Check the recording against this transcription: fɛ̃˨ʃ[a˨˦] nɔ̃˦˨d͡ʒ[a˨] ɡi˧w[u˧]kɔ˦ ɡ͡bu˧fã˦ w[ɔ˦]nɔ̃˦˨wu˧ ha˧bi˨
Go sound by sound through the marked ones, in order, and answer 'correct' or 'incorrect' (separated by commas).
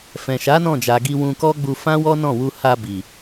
correct, correct, incorrect, correct